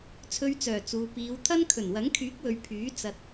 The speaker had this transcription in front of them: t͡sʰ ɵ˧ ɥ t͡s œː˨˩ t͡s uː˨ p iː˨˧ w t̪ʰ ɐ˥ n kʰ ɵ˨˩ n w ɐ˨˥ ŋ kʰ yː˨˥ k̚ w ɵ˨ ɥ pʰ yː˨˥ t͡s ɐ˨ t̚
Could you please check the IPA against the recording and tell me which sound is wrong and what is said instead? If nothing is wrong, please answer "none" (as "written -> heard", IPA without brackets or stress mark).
none